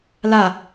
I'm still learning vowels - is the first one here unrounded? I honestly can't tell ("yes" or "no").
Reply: yes